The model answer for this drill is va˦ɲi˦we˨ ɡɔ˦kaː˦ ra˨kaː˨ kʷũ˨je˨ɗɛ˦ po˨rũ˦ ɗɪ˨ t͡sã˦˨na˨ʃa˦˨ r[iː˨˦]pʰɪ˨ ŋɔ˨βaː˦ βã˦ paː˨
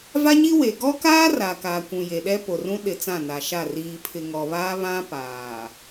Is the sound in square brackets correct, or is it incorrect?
incorrect